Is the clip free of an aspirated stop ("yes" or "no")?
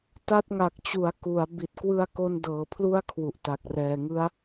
no